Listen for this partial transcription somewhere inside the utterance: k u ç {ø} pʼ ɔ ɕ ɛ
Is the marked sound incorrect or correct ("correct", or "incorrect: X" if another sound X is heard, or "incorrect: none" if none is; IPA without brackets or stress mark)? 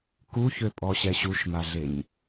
correct